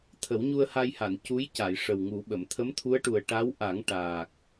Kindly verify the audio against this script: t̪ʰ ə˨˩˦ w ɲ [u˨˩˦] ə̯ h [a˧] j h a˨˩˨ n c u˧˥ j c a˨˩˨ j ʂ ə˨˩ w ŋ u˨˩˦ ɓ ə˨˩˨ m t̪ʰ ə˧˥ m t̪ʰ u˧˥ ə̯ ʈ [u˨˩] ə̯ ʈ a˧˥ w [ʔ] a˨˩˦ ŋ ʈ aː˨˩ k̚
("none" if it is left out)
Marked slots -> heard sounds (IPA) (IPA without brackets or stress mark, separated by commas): u˧, a˧, u˨˩, ʔ